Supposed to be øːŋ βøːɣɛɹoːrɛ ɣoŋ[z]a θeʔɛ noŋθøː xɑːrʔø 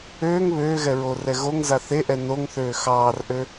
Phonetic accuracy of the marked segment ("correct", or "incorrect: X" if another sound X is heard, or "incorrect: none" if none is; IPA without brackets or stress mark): correct